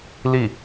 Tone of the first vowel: falling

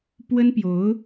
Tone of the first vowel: high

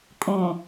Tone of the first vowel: low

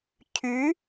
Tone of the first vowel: rising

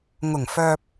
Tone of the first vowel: low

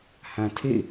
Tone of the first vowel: low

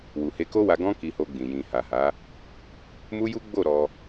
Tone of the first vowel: low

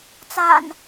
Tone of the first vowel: low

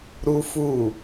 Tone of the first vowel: high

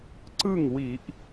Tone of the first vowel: falling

